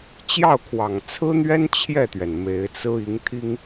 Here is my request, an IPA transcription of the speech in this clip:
t͡ɕ j ɑ˥˩ ʊ̯ kʰ w ɑ˨˩ ŋ t͡sʰ ɹ̩˥ n̪ ɥ ɛ˥ n t͡ɕʰ j ɛ˥˩ t̪ ɥ ɛ˩ n m e˧˥ ɪ̯ t͡s ɹ̩˥ i˧˥ ŋ t̪ʰ i˥ ŋ

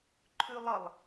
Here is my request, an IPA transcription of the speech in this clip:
ǃʰ ʉ lˠ ʌ lˠ

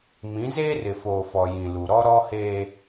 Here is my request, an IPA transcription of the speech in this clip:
m ĩ˨˦ z eː˦ r ɪ˨ f oː˨ f ɔ˨ j ĩ˨ l u˨ ɾ ɔ˦ ɾ ɔ˦ h eː˦

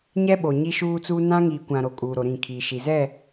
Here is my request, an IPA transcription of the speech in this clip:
ɲ ɛ˦ ɓ o˨ ɲ i˦ ʃ uː˦ t͡s uː˦ n ã˦ ŋ iː˨ kʷ ã˨ ɾ o˨ kʼ uː˨ ɾ o˨ ɾ ĩ˦˨ kʰ iː˨ ʃ i˨ z ɛ˦˨

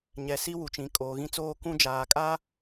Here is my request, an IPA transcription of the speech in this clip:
ɲ ɛ˨ s i˦ w u˨ t͡ʃ ĩ˨ kʼ oː˨ ɣ ĩ˦ t͡s oː˦ k ũ˦ d͡ʒ aː˨ kʼ a˦

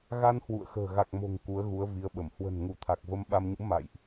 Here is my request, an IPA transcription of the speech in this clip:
ɣ a˧ n h w ṵ˧˨ ə̯ x ə̤ː˨˩ ɣ a˨˩ k̚ m o̤˨˩ ŋ k u˨˦ ə̯ ɣ u˨˦ ə̯ v i˨˦ ə̯ ɓ ə˧˩ m h w ə̤˨˩ n ŋ u˧˩ t̪ʰ a˨˩ k̚ v ə˧ m ɓ a˧ m ɲ ṵ˧˥ m a̰˧˨ j ʔ

